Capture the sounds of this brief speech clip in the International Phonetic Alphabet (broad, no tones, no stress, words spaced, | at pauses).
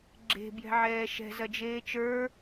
ɡ͡ǁe̤ bjɛ̤ʕɛːʃɛ̤ zɐd͡ʒeːt͡ʃə˞